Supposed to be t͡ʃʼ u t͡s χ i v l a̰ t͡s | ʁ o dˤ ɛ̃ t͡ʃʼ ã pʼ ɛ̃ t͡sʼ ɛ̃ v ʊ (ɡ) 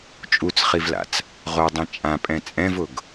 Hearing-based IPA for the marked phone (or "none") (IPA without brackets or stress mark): ɡ